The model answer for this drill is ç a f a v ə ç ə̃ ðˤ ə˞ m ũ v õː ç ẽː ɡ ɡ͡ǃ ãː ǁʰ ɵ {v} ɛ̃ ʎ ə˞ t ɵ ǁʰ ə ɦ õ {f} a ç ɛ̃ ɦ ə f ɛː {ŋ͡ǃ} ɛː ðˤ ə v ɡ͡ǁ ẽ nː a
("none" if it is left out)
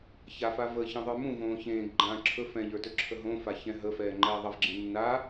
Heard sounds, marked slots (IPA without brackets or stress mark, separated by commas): f, f, ŋ͡ǃ